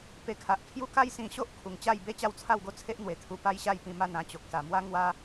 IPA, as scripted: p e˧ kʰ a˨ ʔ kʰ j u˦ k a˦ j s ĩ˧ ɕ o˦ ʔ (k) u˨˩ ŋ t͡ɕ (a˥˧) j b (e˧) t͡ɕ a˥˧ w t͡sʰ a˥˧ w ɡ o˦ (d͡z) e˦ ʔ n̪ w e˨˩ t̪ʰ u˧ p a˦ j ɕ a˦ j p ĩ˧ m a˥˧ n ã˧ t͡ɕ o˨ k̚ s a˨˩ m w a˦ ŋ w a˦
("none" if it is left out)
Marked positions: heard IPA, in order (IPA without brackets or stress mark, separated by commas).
kʰ, a˥˧, e˥˧, t͡sʰ